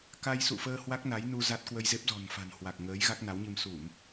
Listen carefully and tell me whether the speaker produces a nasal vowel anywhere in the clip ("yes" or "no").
no